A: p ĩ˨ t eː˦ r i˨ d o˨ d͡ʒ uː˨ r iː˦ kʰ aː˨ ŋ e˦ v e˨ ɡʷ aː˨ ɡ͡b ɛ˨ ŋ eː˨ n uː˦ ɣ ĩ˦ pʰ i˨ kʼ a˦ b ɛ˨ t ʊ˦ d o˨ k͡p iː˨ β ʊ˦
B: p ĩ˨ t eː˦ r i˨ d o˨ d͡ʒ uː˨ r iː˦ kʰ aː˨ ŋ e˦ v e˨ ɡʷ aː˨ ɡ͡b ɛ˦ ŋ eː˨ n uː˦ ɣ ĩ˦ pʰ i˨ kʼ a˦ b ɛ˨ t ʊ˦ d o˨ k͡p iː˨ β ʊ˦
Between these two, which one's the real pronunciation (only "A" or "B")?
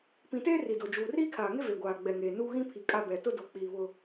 A